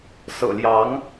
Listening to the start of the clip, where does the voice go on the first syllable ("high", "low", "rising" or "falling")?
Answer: low